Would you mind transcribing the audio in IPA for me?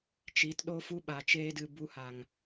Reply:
t͡ʃi˨˦t ɗo˦fu˦ ɓa˨ t͡ʃeː˦dɨ˧ bu˧ha˨ŋ

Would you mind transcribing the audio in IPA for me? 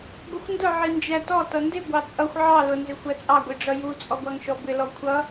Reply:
ɡʷəxʷndʊ ʕind͡ʒætɔ tʌndɪ ɡʷɑt͡sʼʌxʷ ʕɑ lʊ nzɪxʷɜt͡sʼɑ ɡʷiɖ͡ʐʌju t͡sʼɔɡʷɑŋʃɔbɪ lɔkʷʰʌ

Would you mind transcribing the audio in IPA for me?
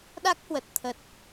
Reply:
ɗa˦˥k̚hwə˨˩t̚t̪ʰə˨˩t̚

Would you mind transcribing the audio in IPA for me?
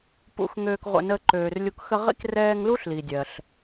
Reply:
pṵ˨xŋøː˨kʁʷə̰˨ nəː˦ǃøː˨rlʲu˦k xə˦ʁḭ˥krɛː˦ŋ lu˥ɬli˩dʲɜ˩ɬ

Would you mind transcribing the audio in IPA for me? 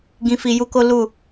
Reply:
ɡĩ˧fi˧ju˦ko˦ lu˦˨

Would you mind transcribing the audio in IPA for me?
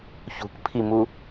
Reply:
çṳkpʰimu

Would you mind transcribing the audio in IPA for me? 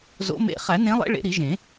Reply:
zo̰˨˦mḛ˨˦ χæ˨˩˦nẽ˨˦lˠḛ˨˦ ɭḛ˨˦ɾi˨˩˦ʒẽ˨˩˦

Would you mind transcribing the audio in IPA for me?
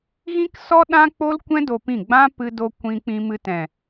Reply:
ɣĩ˦ksɔ˦ ɗã˦k͡po˦lkʷɛ̃˦ do˧pĩ˦˨ ɡ͡bã˦ pɨ˧do˧ kʷĩ˧ k͡pĩ˧mɨ˧tɛ̃˨

